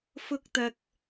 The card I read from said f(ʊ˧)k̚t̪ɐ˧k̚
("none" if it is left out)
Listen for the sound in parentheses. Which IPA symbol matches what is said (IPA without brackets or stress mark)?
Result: ʊ˥